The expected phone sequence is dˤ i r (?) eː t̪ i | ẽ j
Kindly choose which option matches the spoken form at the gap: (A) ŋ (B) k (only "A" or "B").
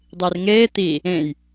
A